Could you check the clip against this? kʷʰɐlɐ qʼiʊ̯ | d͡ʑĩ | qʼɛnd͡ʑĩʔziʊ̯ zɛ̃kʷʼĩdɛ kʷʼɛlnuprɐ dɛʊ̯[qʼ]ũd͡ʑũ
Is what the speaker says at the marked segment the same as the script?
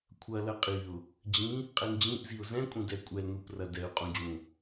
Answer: yes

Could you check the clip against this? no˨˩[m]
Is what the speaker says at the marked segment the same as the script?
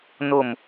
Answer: yes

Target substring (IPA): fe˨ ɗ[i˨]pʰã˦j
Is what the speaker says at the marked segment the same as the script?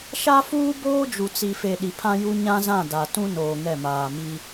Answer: yes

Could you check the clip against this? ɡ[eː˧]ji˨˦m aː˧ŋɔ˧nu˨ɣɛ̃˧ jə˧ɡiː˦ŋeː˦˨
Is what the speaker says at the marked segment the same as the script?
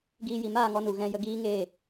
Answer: no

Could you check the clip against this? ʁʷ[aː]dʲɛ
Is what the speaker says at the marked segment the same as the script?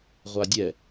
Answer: no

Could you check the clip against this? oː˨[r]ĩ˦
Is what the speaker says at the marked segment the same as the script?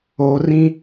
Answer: yes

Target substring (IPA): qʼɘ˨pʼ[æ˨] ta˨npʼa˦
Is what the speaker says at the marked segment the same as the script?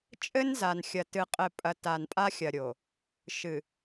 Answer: no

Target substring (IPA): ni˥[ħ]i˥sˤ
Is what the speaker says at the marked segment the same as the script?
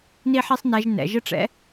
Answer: yes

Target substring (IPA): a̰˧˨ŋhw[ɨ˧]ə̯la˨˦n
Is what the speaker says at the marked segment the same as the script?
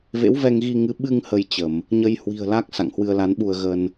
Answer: yes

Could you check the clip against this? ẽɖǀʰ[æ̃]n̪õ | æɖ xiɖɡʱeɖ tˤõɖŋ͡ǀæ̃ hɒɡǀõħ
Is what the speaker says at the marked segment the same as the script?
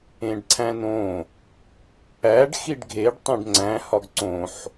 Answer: yes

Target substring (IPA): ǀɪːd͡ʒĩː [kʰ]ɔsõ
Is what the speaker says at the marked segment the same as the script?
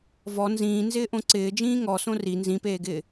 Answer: no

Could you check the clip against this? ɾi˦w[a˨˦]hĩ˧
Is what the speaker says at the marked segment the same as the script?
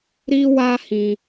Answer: no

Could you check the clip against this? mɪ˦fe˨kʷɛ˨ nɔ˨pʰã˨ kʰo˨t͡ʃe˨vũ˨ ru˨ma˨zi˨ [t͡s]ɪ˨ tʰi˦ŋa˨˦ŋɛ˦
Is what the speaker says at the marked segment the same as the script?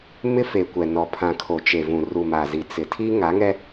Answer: yes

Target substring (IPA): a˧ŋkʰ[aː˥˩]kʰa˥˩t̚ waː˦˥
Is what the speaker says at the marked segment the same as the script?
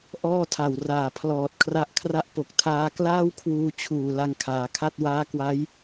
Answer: no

